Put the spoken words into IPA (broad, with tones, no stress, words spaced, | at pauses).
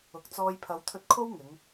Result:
ʊ˨k̚t͡sɔː˧j pʰɐ˨˧wt̪ʰɵ˧t̚ kʰo˥wŋɪ˨˧ŋ